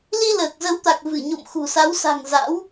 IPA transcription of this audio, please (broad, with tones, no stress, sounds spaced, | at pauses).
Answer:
l i˧ l əː˨˩ k̚ z ə˨˦ w t̪ a˨˩ k̚ v ɨ˧˩ ɲ o̰˧˨ m x ṳ˨˩ s a˨˦ w s a̤˨˩ ŋ z a̰˧˥ w